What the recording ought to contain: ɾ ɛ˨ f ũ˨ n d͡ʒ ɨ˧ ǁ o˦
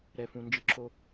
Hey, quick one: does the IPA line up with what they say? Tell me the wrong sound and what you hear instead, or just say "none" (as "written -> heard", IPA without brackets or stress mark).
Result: none